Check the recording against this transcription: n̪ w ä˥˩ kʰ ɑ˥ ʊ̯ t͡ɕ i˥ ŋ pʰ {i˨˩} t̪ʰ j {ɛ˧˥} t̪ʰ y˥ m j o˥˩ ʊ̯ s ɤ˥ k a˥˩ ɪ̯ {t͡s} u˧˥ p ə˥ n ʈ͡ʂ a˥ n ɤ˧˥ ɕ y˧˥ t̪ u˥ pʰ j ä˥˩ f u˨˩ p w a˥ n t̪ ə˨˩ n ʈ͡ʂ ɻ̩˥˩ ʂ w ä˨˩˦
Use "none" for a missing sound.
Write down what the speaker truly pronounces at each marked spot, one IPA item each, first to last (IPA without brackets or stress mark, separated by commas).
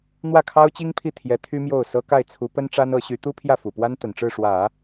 i˥˩, ɛ˧˥, t͡sʰ